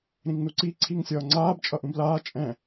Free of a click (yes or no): no